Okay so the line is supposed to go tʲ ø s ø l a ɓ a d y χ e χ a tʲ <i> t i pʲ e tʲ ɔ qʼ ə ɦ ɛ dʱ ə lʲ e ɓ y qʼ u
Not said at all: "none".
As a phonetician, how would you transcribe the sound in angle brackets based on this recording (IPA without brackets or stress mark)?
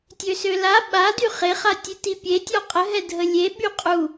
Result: e